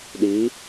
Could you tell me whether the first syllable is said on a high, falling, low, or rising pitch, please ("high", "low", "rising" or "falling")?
rising